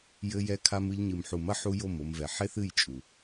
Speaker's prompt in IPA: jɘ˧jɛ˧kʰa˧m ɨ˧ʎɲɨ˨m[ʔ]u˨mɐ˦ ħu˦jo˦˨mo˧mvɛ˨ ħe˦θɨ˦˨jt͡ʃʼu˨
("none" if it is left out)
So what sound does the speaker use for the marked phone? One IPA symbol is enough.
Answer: ħ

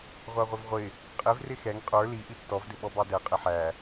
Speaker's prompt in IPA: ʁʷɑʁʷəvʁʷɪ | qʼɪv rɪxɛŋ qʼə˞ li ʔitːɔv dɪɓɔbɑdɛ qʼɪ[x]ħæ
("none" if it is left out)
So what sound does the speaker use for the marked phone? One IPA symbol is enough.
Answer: none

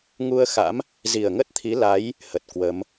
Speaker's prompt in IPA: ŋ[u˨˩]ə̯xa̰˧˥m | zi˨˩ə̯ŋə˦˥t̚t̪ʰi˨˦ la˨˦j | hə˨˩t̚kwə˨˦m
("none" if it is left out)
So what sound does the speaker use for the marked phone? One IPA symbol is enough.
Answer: u˧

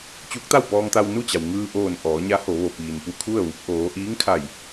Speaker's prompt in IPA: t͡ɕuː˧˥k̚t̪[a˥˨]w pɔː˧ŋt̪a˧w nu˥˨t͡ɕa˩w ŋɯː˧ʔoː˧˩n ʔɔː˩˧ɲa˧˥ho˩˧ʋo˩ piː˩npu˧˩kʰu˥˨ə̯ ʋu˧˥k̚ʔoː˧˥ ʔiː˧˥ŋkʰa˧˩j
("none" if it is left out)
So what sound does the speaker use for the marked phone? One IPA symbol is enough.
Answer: a˥˨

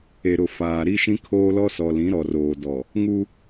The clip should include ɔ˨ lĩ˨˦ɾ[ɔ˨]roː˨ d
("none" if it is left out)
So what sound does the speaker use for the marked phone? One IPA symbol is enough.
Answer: ɔ˨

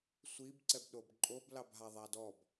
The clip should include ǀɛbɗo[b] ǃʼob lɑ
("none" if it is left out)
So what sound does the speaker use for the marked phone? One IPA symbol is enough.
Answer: b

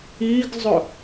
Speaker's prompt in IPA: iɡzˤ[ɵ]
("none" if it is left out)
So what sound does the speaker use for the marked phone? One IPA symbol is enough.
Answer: ɵ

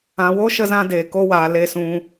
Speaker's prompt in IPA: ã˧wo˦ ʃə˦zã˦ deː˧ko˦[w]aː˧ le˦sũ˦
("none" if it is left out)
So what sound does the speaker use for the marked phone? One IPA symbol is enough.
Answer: w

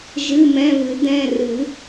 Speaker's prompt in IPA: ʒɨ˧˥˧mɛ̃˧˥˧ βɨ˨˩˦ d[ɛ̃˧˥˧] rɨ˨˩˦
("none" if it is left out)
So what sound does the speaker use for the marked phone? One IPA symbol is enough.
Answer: ɛ̃˧˥˧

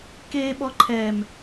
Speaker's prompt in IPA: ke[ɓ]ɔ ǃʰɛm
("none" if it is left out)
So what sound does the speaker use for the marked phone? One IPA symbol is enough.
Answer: ɓ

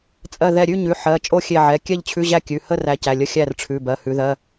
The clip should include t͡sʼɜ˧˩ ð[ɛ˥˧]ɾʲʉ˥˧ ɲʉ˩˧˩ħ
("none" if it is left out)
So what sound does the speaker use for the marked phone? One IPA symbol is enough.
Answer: ɛ˧˩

